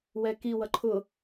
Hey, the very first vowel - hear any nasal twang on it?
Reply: no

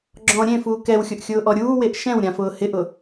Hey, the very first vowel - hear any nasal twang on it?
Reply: yes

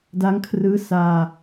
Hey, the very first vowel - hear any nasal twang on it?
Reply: no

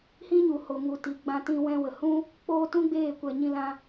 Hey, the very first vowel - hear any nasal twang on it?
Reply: yes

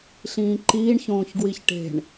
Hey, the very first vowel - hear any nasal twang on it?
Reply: yes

